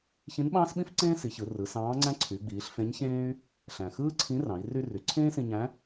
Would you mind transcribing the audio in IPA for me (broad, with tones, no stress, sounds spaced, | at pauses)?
ç ĩ˧˥ n ɓ ɑ̃ː˥ s ɓ ĩ˥ f ǀ ẽː˥ s i˩˧ ç ɯ˩˧ r ɯ˩˧ s ɑ̃ː˧˥ ŋ͡ǀ æ̃˥ ǀʰ y˩˧ ɡ͡b iː˩˧ ɬ f ẽ˧˥ ɲ ç ẽː˥ y̯ | ɬ æ̃˩ x ɯː˥ ǀʰ ĩ˧˥ r ɑ̃˩˧ i̯ r y˧ r y˩˧ ǀʰ ẽː˥ s ĩ˧ ɲ æ̃˧˥